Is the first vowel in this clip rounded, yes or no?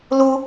yes